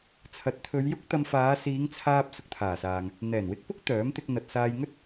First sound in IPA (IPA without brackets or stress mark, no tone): t͡sʰ